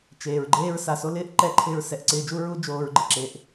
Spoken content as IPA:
t͡ʃeː˨ɹɡ͡ǃeː˦ɹ sa˨so˧lɪː˦ʔǃɛ˧ ǃʰɪː˧ɹsɛ˨ʔǀɪː˧d͡ʒu˦ ɹu˦ d͡ʒoː˧ɹɡ͡ǃɪ˨ǁe˧ʔ

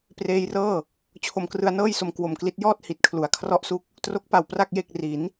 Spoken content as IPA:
preː˧jrɤː˥˩ | t͡ɕʰo˧mkrɯ˧a̯nɤː˥˩jso˧m kwo˨˩mkli˦˥t̚ jɔː˥˩t̚ hi˨˩t̚kʰlu˩˦a̯ kʰrɔ˥˩ʔsu˥˩k̚ | tro˦˥k̚pa˨˩w pra˥˩k̚ je˥˩k̚ ri˩˦n

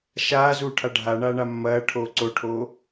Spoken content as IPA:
ʃaːzuːʈʰa ɖʱaɳaːɳa mːɐː ʈʰoːǀoʈʰoː

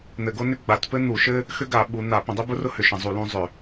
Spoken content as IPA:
n̪ɘ˧˩˧ɡo˥nʏ˥ ɡ͡ba˨˦tpɘ˥n̪u˧˩˧ʃɘ˥ | xʏ˥ɡa˧˩˧ ɓu˨˦n̪a˧˩˧ pə̃˧˩˧dˤʏ˥bʊ˥rʊ˥ hʏ˧˩˧ʃə̃˧˩˧zˤu˧˩˧ lũ˥zˤʏ˧˩˧

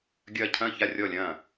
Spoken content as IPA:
ɡʲɐː˥˩ cʰɐ̃ː˥˩ça˥˩ rʲɔ˥˩lʲɐ̃ː˥˩

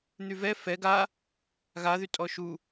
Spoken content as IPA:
n̪yvɛ fɛɡ a | ɣaðy tʼɔʃu

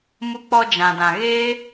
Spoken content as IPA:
mu˧k͡pɔ˧ d͡ʒã˨dã˨ɣeː˦

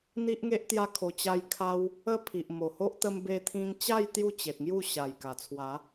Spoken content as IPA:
n̪i˦ʔŋe˦ʔt̪ja˦kʰo˧ t͡ɕa˧jkʰa˧w | ə˦pʰi˨ʔ mo˨˩ho˦ʔ t̪ə˧mbe˧t̪ʰĩ˧ŋt͡ɕa˥˧j t̪ju˥˧t͡ɕe˨t̚ŋju˥˧ɕa˨˩j ka˨˩t͡sʰwa˨˦

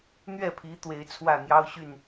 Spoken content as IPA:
n̪ɥɛ˥˩pʰi˧˥ t̪we˧˥ɪ̯t͡sʰwä˥˩n̪jɑ˥ʊ̯ ɕy˥˩n

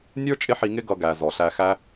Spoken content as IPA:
nʲə˞˥ t͡ʃʼɪ˥ħi˧ŋɪ˥ ɡʌ˧ɡæ˩ zɔ˩ɬæ˧xæ˥

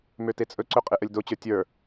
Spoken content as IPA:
møtet͡sʼɵǀɵ qʼeʔəlʲdot͡ɕə˞ tʲə˞

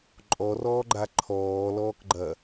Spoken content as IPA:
ǃʼɔrɔːɡ͡ǃa ǃʰɔːlɔːkɡ͡ǃɐ

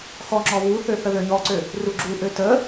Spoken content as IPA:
xɔŋ͡ǁɔ βuθø θəðøɲɔǀø | ruɡ͡ǁuʔø tə

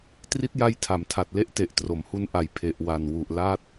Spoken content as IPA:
tri˦˥t̚ja˦˥j tʰa˩˦mtʰa˨˩t̚le˦˥ʔ te˨˩ʔtro˩˦mhu˧nʔa˨˩j pʰe˨˩ʔwa˨˩n wu˨˩ʔla˥˩t̚

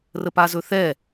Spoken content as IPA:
rəpazɵθɛ

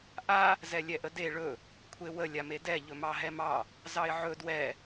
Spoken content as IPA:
ʔa | zɛlʲɛʔəde ɭɵ | kʷʰewə lʲamedɛ ʎɵmɑɦɛmɑ | zɑɪ̯ʕɵ dwɛ

